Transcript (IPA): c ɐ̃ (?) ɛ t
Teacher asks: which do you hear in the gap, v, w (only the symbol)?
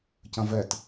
v